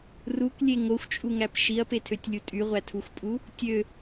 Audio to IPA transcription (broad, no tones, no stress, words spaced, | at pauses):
ruklʲe ŋoxʷt͡ʃʼuŋæp ʃiɐ̯petʰøtʲlʲu tʼyʁʷætʰuxʷpʼu | tʲø